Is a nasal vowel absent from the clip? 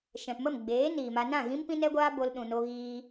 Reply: no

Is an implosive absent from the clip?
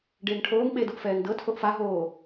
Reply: no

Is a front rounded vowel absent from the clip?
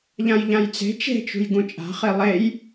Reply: yes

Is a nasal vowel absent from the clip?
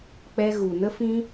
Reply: no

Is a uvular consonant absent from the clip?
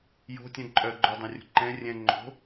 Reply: yes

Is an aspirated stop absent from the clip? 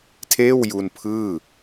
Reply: no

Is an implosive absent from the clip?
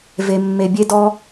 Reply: yes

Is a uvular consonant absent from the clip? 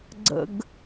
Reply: yes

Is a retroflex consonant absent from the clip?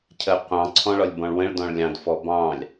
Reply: no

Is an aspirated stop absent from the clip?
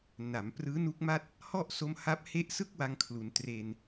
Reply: no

